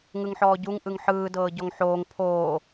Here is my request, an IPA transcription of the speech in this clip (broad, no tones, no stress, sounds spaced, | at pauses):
ŋ ɯ ŋ ħ ɔː ɟ u ŋ ʔ ɯ ŋ ħ ɯː d ɤː ɟ ɔ ŋ ħ oː ŋ pʰ oː